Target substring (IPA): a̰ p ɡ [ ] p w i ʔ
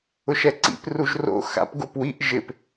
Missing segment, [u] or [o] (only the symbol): o